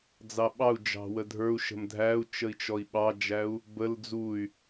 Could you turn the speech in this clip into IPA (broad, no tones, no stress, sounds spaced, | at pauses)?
d͡z ɑ ɓ ɑ u̯ d͡ʒ ɑ̤ w ə dʱ ə˞ u̯ ʃ ə̤ m dʱ æ u̯ t͡ʃ ə i̯ t͡ʃ ɔ i̯ ɓ ɑ d͡ʒ æ u̯ | b ə l d͡z u y̯